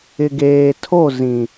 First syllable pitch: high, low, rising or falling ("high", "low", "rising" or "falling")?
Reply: low